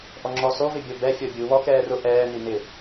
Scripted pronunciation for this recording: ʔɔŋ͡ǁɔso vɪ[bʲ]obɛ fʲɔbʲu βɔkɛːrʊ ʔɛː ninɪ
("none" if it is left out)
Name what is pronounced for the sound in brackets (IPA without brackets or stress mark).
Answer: bʲ